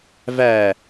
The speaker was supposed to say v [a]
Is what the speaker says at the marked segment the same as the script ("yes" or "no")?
no